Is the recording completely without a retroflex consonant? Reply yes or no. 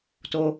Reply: yes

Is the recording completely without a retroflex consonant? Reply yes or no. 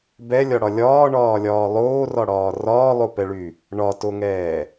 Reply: no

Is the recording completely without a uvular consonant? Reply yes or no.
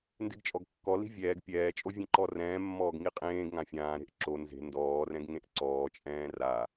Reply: no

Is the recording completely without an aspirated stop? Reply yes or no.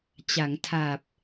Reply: no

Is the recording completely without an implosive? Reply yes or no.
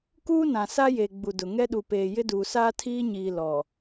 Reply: no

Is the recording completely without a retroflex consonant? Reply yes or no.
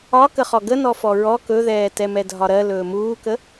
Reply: yes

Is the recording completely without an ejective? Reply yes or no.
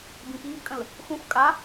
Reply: no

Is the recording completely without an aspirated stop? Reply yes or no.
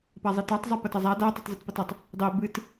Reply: yes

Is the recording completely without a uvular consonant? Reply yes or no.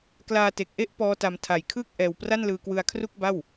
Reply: yes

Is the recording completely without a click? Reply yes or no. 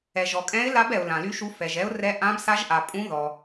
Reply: yes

